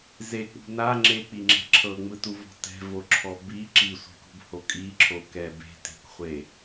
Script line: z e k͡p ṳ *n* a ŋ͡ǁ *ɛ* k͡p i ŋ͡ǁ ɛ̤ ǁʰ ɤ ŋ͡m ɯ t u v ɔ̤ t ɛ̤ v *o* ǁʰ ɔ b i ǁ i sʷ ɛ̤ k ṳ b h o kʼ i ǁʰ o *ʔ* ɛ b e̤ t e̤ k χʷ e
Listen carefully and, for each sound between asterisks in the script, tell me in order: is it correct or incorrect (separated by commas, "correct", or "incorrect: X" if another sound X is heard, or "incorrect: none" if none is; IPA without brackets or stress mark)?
correct, incorrect: e, correct, incorrect: k